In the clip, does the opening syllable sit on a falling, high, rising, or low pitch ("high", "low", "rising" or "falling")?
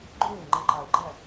falling